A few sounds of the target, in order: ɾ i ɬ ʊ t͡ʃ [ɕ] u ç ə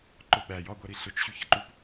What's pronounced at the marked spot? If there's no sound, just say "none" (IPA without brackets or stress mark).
ɕ